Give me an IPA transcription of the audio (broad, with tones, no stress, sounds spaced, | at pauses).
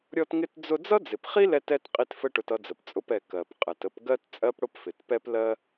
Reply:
ɾʲ ɔ˧ t ŋ ɪ˧ t d͡z ʊ˧ d͡z ʌ˥ d͡z ɪ˩ p χ i˥ l ɛ˧ t ɛ˧ t qʼ i˧ t f ə˥ ʈ ʊ˧ t ʌ˧ d͡z ə˩ p t͡sʼ ʊ˧ p ɛ˩ k ɜ˩ p qʼ ɛ˩ t ə˧ p ɡ ɜ˥ t t͡sʼ ɜ˥ p ɽ ʊ˥ p f ɪ˩ t p ɛ˥ p l ɜ˥